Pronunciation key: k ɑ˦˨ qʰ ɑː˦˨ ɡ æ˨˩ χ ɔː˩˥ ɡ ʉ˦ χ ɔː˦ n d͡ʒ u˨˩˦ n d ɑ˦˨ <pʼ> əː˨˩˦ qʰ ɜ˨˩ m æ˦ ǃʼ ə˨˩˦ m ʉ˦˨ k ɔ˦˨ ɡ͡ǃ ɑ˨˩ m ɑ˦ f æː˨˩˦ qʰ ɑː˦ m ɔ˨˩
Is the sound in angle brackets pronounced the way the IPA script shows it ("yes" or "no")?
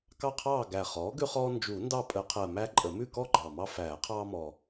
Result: yes